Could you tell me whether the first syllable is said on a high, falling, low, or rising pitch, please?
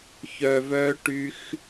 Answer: low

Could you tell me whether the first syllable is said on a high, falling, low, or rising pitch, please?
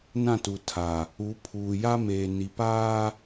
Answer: falling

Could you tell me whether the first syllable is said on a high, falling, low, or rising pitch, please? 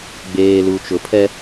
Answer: low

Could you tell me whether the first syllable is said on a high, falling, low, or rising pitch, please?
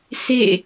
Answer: falling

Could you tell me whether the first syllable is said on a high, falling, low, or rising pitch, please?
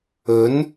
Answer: rising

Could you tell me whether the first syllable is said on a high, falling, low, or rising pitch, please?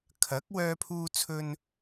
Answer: rising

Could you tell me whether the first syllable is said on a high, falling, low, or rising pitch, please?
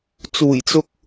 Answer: low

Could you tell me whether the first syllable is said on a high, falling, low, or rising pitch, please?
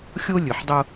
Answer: high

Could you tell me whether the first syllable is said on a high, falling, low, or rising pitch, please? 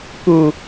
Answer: low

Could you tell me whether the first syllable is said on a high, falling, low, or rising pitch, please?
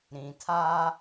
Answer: low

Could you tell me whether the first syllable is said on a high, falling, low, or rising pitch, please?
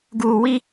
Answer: low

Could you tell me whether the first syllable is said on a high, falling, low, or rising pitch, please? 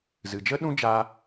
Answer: low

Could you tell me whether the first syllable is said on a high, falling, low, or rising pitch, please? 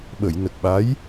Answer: low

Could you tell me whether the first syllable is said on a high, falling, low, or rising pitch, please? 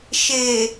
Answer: low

